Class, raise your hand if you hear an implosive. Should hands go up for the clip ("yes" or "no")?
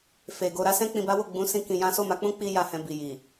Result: no